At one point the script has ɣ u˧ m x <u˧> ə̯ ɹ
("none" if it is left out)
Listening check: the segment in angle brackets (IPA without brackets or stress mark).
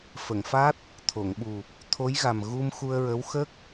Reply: u˧